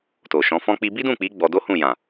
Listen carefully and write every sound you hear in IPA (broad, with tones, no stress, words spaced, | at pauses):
to˨ʃɔ̃˨˦fɔ̃˦k͡pi˦ bi˦dũ˦˨k͡pi˨˦ ɡ͡bɔ˧do˦hũ˦˨ jã˨